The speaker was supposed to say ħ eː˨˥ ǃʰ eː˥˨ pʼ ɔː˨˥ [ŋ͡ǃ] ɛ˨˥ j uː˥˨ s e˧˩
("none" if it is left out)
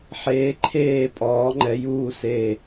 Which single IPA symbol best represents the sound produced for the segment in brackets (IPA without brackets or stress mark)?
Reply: ŋ͡ǃ